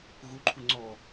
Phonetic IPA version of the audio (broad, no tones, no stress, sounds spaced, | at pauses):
ɣ u ǃʰ u ŋ͡ǀ ɔ